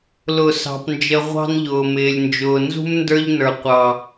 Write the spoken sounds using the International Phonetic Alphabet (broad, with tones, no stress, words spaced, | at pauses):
lʊ˦˨ sɑ̤˦pnd͡ʒə˦ ʁʷɑ̤˦nʎʊː˨mɪː˨lʲnd͡ʒʊː˨ nzṳ˦m ndə˞˦ʎnə˞˨ qʷɑ˨